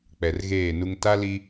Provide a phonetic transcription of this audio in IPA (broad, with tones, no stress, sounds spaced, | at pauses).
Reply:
k͡p ɛ˨ r ɣ eː˦˨ n u˦ ŋ t a˦ l i˦